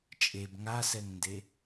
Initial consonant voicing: voiceless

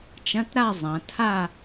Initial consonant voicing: voiceless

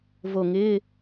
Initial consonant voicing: voiced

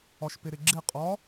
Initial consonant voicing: voiceless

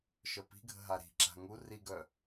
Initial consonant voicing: voiceless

